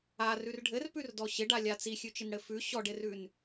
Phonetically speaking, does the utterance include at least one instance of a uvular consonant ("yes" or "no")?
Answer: no